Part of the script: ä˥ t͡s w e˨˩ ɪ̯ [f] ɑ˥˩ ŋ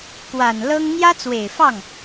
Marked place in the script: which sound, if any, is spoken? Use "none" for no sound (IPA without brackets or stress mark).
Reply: f